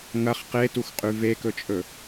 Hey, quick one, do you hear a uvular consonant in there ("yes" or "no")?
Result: yes